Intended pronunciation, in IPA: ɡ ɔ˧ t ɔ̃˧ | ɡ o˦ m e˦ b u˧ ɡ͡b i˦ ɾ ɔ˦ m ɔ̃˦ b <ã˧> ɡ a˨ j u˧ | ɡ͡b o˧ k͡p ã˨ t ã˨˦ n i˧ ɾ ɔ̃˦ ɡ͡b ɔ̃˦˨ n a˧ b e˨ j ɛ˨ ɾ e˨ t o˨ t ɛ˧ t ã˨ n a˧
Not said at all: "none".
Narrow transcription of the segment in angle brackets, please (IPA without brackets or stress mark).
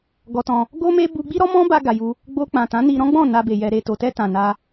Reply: a˧